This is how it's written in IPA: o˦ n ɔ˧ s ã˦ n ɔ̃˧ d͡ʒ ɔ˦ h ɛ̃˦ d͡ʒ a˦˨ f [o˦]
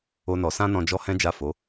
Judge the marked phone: incorrect: o˨˦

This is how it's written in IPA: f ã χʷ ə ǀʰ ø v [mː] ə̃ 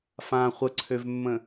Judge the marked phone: correct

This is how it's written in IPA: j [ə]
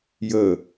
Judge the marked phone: correct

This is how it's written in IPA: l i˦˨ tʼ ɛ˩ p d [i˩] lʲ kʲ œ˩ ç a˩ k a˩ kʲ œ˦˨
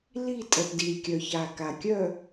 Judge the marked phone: correct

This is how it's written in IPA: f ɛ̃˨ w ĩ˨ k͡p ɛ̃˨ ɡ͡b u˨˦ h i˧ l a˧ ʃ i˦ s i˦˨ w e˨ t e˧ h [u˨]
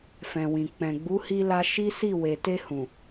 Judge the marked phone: incorrect: ũ˨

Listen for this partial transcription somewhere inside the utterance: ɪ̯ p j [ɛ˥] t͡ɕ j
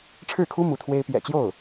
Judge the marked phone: incorrect: ɛ̰˨˩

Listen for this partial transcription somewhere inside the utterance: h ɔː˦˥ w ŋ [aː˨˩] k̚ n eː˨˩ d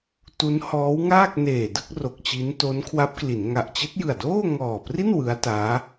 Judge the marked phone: incorrect: aː˥˩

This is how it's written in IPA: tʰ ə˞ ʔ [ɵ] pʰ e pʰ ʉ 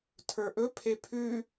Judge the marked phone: correct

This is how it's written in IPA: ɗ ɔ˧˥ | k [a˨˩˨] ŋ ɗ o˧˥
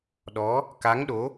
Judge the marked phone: incorrect: a˧˥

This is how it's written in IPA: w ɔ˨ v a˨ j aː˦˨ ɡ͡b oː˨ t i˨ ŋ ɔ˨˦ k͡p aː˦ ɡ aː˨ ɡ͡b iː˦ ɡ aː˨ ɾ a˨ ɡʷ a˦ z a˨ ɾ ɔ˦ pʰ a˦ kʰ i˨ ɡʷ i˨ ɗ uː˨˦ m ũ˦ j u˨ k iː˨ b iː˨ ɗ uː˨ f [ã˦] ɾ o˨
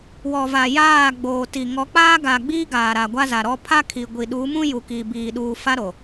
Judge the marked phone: incorrect: a˦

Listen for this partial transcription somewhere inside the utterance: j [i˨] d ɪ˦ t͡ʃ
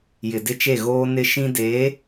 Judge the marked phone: incorrect: ɪ˨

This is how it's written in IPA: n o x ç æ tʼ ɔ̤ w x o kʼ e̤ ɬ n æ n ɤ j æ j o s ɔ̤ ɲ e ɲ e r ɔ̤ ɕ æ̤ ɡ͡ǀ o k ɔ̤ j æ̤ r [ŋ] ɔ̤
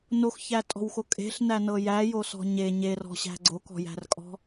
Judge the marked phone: incorrect: kʼ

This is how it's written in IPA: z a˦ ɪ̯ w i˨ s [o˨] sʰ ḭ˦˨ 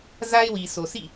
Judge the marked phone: correct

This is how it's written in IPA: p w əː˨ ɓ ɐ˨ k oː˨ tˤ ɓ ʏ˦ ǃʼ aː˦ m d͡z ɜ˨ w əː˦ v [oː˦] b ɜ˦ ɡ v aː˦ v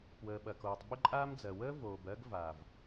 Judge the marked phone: incorrect: oː˨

